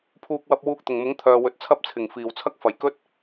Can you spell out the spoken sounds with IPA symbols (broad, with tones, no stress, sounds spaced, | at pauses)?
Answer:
pʰ uː˧ k̚ w ɐ˧ p̚ w uː˧ k̚ t̪ ʊ˨˩ ŋ m ʊ˨˥ ŋ t̪ʰ œː˨ w ɵ˨ t̚ t͡sʰ ɐ˥ p̚ t͡sʰ ɪ˨˩ ŋ f iː˨˩ w t͡sʰ ɐ˥ k̚ f ɐ˨˩ j k ɵ˥ t̚